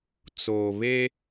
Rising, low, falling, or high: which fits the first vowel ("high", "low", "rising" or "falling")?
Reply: low